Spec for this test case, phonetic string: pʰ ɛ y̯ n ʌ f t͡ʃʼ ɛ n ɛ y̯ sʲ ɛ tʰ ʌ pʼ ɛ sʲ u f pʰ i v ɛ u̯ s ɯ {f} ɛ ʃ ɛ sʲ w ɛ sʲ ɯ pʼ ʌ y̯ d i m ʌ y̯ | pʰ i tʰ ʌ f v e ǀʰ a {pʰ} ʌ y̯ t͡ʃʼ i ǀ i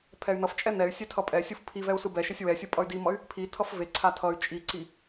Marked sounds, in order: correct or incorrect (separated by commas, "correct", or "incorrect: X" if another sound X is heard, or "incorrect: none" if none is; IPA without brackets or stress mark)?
incorrect: b, incorrect: tʰ